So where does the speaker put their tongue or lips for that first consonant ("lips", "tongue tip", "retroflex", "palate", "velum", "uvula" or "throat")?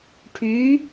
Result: retroflex